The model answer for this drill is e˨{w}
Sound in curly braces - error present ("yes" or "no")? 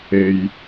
yes